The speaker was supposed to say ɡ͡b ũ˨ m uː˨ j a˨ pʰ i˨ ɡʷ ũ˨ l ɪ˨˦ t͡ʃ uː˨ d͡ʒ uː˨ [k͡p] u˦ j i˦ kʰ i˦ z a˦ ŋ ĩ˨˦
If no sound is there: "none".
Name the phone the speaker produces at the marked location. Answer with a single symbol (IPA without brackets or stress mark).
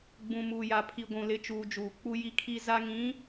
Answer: k͡p